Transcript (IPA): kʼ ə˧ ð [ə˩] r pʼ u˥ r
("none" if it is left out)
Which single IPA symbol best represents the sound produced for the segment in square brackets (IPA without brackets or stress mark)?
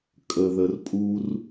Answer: ə˧